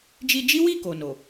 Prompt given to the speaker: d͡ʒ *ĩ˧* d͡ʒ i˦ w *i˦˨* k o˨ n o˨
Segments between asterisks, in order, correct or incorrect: incorrect: i˧, correct

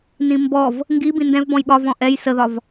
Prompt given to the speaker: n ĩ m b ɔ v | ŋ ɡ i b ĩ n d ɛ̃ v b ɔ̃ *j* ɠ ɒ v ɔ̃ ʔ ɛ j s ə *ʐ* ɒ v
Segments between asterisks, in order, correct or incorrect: correct, incorrect: ð

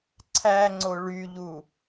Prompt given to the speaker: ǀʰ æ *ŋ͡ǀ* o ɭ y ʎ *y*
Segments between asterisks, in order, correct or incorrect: correct, incorrect: u

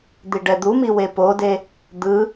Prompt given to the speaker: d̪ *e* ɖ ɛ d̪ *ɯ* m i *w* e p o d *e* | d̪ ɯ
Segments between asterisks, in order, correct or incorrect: incorrect: i, incorrect: u, correct, correct

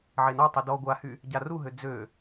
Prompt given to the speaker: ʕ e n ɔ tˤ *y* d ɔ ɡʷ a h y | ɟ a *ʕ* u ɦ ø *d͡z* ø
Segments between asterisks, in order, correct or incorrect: correct, incorrect: r, correct

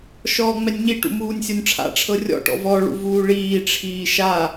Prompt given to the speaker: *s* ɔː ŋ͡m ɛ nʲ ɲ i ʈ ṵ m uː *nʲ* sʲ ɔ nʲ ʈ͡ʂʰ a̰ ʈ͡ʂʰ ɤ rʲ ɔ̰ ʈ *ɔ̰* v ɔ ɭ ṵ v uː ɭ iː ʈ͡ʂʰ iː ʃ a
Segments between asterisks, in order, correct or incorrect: incorrect: ʃ, correct, correct

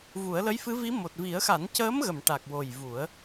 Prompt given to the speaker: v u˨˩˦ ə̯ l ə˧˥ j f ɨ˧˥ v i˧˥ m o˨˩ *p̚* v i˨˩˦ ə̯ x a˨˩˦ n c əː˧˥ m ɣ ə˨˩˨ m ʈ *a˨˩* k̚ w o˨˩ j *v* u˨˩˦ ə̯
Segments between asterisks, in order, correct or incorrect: incorrect: t̚, correct, correct

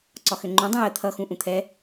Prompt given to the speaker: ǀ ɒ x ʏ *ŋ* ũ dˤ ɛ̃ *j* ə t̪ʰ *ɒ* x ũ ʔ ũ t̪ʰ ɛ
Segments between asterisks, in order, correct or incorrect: incorrect: ŋ͡ǃ, correct, incorrect: ʌ

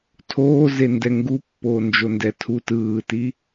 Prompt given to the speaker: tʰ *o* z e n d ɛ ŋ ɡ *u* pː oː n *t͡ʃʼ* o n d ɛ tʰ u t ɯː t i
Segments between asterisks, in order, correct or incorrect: incorrect: oː, correct, incorrect: d͡ʒ

